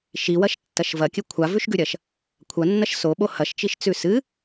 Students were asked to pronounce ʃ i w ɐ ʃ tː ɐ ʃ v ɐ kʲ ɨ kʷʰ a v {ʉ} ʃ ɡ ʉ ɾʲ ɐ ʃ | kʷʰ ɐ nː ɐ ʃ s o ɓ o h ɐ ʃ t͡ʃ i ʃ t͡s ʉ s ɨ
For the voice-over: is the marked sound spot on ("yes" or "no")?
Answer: yes